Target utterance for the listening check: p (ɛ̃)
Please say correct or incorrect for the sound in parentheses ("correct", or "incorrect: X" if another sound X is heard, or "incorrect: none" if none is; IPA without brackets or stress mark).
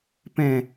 correct